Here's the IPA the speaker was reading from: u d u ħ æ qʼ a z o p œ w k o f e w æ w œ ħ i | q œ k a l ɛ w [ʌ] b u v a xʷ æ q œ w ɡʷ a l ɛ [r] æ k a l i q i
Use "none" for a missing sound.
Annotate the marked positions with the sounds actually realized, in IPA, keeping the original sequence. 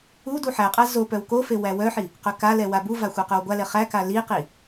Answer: a, χ

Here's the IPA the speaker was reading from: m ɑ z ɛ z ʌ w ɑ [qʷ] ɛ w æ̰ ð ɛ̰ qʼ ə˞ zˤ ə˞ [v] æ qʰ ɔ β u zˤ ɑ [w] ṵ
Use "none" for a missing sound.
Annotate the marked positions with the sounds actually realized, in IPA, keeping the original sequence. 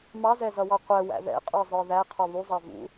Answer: qʷ, ð, v

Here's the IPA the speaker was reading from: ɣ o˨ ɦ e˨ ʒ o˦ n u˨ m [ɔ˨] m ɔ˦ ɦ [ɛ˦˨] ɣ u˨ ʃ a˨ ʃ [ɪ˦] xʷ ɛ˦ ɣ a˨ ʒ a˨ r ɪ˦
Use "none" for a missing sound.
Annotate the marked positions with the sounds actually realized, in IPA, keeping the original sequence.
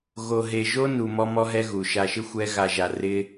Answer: ɔ˦, ɛ˦, ɪ˦

